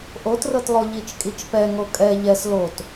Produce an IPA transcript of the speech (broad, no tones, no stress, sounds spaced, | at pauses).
ʔ o t r ɤ t lˠ o ʎ i t͡ʃ kʼ i t͡ʃ p ɛ ŋ o kʼ ɛ ʎ ɛ s l o t